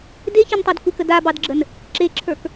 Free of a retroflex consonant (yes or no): yes